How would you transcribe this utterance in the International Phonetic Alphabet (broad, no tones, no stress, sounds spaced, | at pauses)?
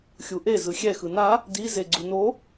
xʲ u ʔ e z ɯ xʲ ɛ x ɯ n a | d i z e ɡ͡ǀ u n o